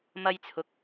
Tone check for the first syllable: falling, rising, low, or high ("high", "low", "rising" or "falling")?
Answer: high